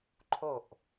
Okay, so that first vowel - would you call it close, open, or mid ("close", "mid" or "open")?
mid